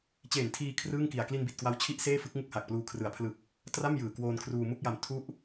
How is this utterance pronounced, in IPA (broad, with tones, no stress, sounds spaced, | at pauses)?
t͡ɕ eː˨˩ n tʰ iː˧ kʰ r ɯː˥˩ ŋ k i˨˩ a̯ k l i˧ n b i˨˩ t̚ k w a˦˥ w t͡ɕʰ i˦˥ ʔ s eː˥˩ f ɯ˦˥ k̚ ŋ u˥˩ k̚ h a˨˩ k̚ p l uː˧ kʰ r ɯ˩˦ a̯ pʰ l ɯ˨˩ k̚ | t r a˥˩ m j ɯː˨˩ k w oː˧ n kʰ r uː˧ m u˥˩ k̚ j a˧ m tʰ u˦˥ ʔ